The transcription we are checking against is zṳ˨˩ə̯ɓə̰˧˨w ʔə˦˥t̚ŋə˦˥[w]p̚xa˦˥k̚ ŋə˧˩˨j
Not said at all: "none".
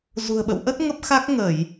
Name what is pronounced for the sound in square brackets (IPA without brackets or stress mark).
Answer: none